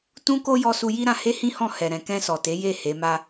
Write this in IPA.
t ũ˦ k o˦ j ɔ˧ s u˧ j i˦ ɾ ã˧ h e˦ h ĩ˦ h ɔ̃˦˨ h ɛ˨ ɾ ɛ̃˨ k ɛ̃˧ s ɔ˨ t e˨˦ j e˦˨ h e˨˦ m a˦

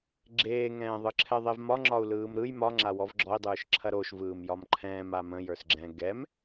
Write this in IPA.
ɡ͡ǁ eː ŋ ɛ̃ː ðˤ ɯ ǁʰ ɛ ðˤ e v m ɒ ŋ͡ǁ ɒ u̯ l ɯː m ɾ ɯ j m ɒ ŋ͡ǁ a w ɔ v ɡ͡ǁ ɔ i̯ dˤ ɯː ʃ ǁʰ ɐ ɾ o ʃ v ɯː m j ɒ m ǃʰ ɛ̃ː m a m ə̃ j ə˞ s ɡ͡ǁ ɛ̃ ɡ ɛ m

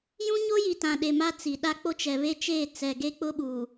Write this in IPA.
j ũ˦ ɲ o˦ j i˨ t ã˨ ɗ e˨ m a˦ t͡s i˨ ɗ a˦ k͡p o˦ t͡ʃ ɛ˨ β e˦ t͡ʃ eː˦˨ t͡s ɛ˨ ɡ e˦ k͡p ʊ˦ ɓ uː˨

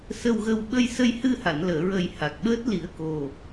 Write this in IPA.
s ə˧ w ɣ ə˧ w ɓ ə˧ j s ə˧ j h ɨ˧ h a˨˩˨ n l əː˨˩˨ ɹ ə˨˩ j h a˨˩ k̚ ɓ əː˦˥ t̚ l i˨˩˦ ə̯ k o˨˩

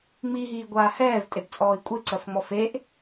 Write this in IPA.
ŋ͡m i ɦ iː ɡʷ aː h ɛː v tʼ e b t͡sʼ ɔː i̯ kʷʼ e ǀ ɜ f ŋ͡m ɔ f e ʔ

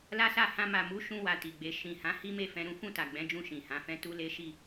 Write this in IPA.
l a˦ s a˦˨ h ã˧ m a˨ m u˨˦ ʃ ũ˧ w a˨ t i˨ ɡ͡b e˧ ʃ ĩ˨ h ã˨˦ h i˦ m e˦˨ f ɛ̃˧ ɾ ũ˦ f ũ˦˨ t a˨ ɡ͡b ɛ̃˨˦ d͡ʒ ũ˧ ʃ ĩ˨ h ã˨˦ f ɛ̃˦ t u˦ l e˦ ʃ i˦˨

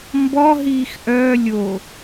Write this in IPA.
m b ɔ ɦ iː x ʔ œː lʲ o

